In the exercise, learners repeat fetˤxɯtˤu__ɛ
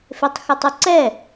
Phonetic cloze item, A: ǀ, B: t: A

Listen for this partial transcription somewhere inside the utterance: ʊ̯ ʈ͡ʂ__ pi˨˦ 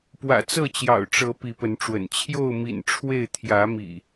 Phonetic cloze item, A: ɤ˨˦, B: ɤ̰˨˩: A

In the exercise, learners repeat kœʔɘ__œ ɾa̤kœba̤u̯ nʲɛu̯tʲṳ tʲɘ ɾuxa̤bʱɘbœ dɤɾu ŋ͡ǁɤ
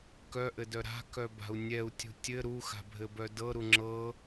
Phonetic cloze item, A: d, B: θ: A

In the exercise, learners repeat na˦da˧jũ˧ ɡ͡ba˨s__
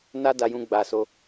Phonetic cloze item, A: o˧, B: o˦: A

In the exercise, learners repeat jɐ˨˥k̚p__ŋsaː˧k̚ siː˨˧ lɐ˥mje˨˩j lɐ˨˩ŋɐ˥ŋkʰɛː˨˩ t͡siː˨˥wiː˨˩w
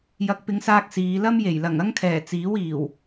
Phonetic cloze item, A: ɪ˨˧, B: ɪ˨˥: A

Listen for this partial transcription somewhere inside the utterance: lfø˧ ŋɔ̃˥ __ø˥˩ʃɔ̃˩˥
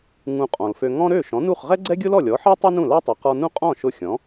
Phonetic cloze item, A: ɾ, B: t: A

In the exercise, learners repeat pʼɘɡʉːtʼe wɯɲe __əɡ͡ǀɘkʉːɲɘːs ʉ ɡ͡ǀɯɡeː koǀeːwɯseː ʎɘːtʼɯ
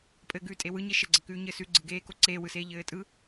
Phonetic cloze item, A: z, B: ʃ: B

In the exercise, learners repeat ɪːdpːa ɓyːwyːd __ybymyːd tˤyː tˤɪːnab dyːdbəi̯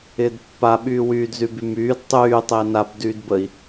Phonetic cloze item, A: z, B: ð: A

